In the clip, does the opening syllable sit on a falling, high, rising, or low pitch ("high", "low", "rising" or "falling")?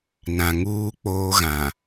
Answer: low